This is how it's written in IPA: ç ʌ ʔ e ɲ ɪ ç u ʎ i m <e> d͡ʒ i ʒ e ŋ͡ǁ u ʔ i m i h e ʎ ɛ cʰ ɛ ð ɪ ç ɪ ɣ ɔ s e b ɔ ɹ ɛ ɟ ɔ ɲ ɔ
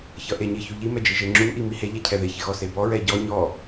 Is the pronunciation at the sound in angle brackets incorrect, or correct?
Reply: incorrect